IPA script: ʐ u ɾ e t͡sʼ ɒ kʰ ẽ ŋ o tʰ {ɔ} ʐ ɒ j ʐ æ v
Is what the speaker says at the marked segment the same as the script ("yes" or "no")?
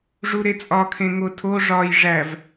no